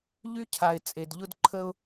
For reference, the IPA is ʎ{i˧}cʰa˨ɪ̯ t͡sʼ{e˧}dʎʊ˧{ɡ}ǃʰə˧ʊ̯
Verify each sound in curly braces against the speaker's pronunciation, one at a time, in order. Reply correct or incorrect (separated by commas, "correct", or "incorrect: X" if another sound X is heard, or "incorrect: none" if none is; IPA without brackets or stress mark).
incorrect: y˧, incorrect: e˨, incorrect: d